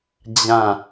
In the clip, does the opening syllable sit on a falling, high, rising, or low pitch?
falling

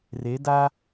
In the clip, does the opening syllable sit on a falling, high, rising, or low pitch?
rising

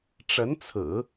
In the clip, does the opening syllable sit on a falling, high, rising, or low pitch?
rising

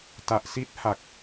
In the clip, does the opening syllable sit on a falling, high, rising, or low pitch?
low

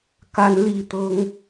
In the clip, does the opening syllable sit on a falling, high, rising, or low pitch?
high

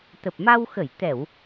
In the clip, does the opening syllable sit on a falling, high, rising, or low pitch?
low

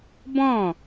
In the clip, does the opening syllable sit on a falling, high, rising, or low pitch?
falling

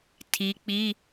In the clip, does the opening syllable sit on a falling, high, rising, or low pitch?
rising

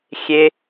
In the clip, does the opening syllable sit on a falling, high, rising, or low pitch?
high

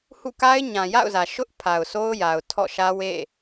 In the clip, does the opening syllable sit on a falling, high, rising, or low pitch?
falling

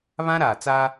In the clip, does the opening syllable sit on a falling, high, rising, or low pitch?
high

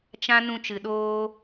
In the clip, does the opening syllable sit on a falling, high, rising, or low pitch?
high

